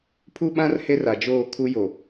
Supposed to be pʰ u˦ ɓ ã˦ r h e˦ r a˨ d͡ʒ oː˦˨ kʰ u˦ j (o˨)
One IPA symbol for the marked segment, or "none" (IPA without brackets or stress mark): o˨